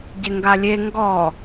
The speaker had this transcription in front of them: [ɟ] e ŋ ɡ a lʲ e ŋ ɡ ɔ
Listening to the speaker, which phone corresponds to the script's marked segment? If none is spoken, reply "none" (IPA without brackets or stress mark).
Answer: ɟ